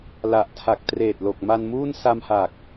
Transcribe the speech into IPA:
l a˨˩ ʔ tʰ a˨˩ k̚ t r eː˨˩ t̚ l o˨˩ k̚ m a˧ n m uː˥˩ n s a˧ m h a˨˩ k̚

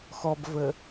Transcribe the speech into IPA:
x ɔ b v ə

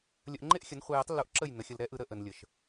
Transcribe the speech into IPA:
lʲ ə˧ ʔ ŋ͡ǃ e˦ ʔ xʲ ə˨˦ n χʷ e˧ j ə˦ tˤ lː u˧ ʔ ǁ ə˦˨ j n ə˨˦ xʲ ə˧ l ɾ ɛ˦ ʔ ɯ˧ ɾ ə˦ ʔ ə˨ n lʲ ə˨ ʃ

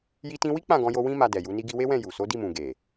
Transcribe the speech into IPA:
j i˧ t ĩ˧ w i˦ k͡p ã˦˨ ɡ ɔ̃˧ j o˧ w ĩ˦ m a˧ d ɛ˨ j u˨˦ n i˧ ɡ i˧ w e˦ w ɛ̃˦˨ j u˨ s o˨˦ d i˦˨ m ũ˨ ɡ e˨

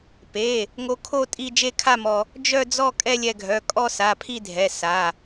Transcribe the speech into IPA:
p e˩˧˩ | ŋ o˧ kʰ o˥˧ tʼ i˥˧ d͡ʒ e˥˧ kʰ a˥˧ m ɔ˧ | d͡ʒ œ˥˧ d͡z ɔ˥˧ kʼ ɛ˥˧ lʲ ɛ˧ ɡʱ œ˩˧˩ kʼ ɔ˥˧ s a˩˧˩ pʰ i˥˧ dʱ ɛ˩˧˩ s a˩˧˩

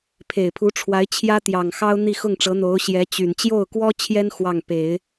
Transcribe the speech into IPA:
pʰ e˨˩ ɪ̯ pʰ u˧˥ ʈ͡ʂʰ w a˧˥ ɪ̯ t͡ɕʰ j ä˥ t̪ j ɑ˨˩ ŋ x ɑ˥ ʊ̯ n̪ i˥˧ x ʊ˥˩ ŋ ʈ͡ʂ ɤ˧˥ n̪ o˧˥ ʊ̯ ɕ j ɛ˧˥ t͡ɕ y˨˩ n t͡ɕ j o˥˩ ʊ̯ k w ɔ˥ t͡ɕʰ j ɛ˥ n x w ɑ˥˩ ŋ p e˨˩˦ ɪ̯

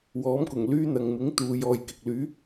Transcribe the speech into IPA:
w ɔː˨˥ m k ʊ˨˩ ŋ l yː˥ n̪ ɐ˨ ŋ m ɪ˨˥ ŋ t̪ uː˨˧ j ɔː˧ j k ɪ˨ k̚ l yː˨˥

